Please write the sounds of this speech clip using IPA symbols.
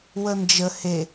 w ə n d͡ʒ ə h e

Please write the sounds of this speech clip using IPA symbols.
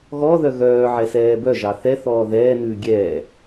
ɣ ɔ ð œ ɣ œː ʕ ɛ s ɛː b œ ʒ ɑ θ ɛ θ ɔː ð ɛː n ʉ ɡʲ ɛː

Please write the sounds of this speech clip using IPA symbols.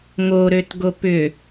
ŋ o ɾ ø t ɡ o p ʏ

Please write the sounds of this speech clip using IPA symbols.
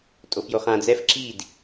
tʼ o f j o χ ã d͡z ɛ f ǁ i d

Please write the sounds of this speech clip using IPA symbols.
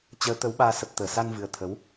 t͡ɕ əː˨˦ t̪ ə˨˦ w ɓ aː˧ s ə˨˩ p̚ t̪ əː˧˩ s a˧ n v ɨ˨˩ ə̯ t̪ʰ ə˨˦ w

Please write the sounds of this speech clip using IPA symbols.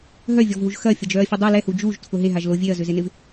ɦ œ vʲ ɔ v ɦ u ʒ x ɐ fʲ ɐ d͡ʒ œ ɐ̯ fʲ ʊ dˤ u l ɛ h u d͡ʒ u ʒ tʰ ʊ ɦ e ɦ a ʒ l o vʲ e ɐ̯ z ʏ z e n ɪ v

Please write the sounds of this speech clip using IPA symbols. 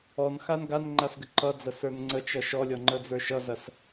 ɔ n x a n ɡ a n ŋ͡ǃ a s ɡ ə ǃ ʌ d͡z ɐ s ə˞ n ŋ͡ǀ ə t͡ʃ ʌ ʃ ɔ lʲ ɔ ŋ͡ǃ ə d͡z ə˞ ʃ ʌ z ɐ s

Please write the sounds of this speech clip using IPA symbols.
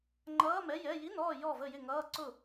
ŋ͡ǃ ʌː˧˥˧ m ɛ˧˥˧ j ɛ˧˥˧ j i˧˥˧ n ɔː˥˨ j ɔ˥˨ v ə˥˨ j ɪ˥˨ ŋ ʌː˧˥˧ ǀ ʊ˥˨

